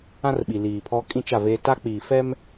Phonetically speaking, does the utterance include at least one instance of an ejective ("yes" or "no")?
yes